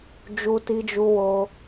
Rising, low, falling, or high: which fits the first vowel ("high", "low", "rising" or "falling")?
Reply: high